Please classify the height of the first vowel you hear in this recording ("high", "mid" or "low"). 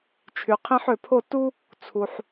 high